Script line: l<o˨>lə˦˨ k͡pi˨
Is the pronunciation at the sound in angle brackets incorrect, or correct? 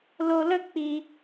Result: correct